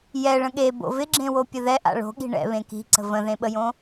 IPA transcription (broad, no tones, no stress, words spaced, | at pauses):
jɛ ɭə̃ɠe bo̰vɪɡ͡ǁẽwo pʲəðɛʔa̰ ɭo̤ɠi̤ ɳɛ̰ βẽki̤ǀə̤ və̃ðẽɓəjõ